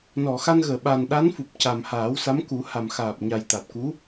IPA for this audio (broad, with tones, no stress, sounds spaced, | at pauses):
n ɔ˨˩˨ x a˧ n ɣ əː˨˩˨ ɓ a˨˩ n ɗ a˧˥ n f u˨˩ p̚ c a˨˩ m h aː˨˩˦ w s a˧˥ m k u˨˩˦ h a˨˩ m x aː˨˩ p̚ ɲ a˨˩ j t̪ a˨˩ t̚ k u˧˥